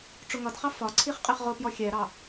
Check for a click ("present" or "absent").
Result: present